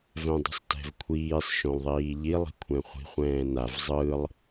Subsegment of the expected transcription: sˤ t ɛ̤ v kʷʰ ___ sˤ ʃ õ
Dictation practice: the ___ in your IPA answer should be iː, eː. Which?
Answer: iː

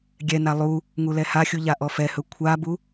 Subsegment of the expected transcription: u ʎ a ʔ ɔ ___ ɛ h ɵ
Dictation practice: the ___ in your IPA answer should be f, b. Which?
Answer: f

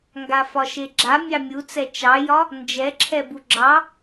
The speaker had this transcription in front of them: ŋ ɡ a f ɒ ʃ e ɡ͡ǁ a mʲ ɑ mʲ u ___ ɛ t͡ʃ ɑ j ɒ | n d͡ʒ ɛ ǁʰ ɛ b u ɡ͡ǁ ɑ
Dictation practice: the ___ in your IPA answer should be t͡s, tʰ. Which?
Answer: t͡s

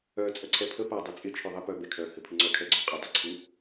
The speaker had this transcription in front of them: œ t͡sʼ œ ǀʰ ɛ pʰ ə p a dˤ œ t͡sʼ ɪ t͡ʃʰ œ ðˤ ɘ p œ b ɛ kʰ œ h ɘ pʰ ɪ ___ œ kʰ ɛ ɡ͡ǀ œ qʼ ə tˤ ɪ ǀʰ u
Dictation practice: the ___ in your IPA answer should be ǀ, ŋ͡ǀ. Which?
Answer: ŋ͡ǀ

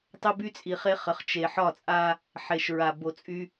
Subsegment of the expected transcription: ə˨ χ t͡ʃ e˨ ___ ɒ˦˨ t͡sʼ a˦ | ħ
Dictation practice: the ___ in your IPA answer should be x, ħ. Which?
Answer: ħ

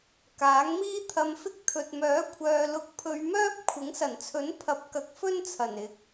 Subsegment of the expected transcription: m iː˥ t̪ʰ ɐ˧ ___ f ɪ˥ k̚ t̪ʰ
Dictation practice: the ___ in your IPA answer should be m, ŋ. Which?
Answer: m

